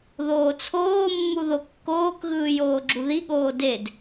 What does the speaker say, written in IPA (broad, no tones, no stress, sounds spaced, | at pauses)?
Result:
ð oː t͡sʰ oː mː u ð o kː oː k ɣ ɯː j oː ɡ͡ǁ u ð i ɠ oː d e d